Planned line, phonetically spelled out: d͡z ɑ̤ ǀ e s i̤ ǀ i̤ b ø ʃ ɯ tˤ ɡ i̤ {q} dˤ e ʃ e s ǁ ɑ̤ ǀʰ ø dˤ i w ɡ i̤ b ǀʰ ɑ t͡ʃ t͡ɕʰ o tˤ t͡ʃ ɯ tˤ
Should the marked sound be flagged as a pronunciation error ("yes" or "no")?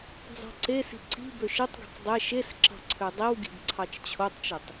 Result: no